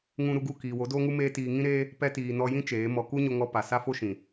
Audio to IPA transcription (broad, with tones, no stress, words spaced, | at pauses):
ŋũ˧ɾu˧ɡu˦˨kiː˨ wo˨˦doː˦ŋu˦ meː˦tiː˧ ŋĩ˦ɾeː˦ | pɛ˧tiː˨ nɔ˧jĩ˦ t͡ʃeː˨˦mɔ˧ ku˦ɲo˧ŋɔ˧pa˨ sa˦fo˦ʃĩ˨